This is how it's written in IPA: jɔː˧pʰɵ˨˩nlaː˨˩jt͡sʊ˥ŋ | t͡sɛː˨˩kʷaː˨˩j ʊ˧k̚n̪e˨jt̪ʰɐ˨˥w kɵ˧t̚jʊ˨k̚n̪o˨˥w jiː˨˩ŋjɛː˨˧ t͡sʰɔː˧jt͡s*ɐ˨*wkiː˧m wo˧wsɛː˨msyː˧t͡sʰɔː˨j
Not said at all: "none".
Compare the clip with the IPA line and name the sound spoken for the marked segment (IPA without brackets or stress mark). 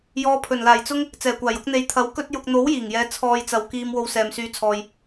ɐ˨